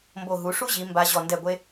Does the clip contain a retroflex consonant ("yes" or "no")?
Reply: yes